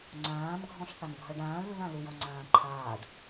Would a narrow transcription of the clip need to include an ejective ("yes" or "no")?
no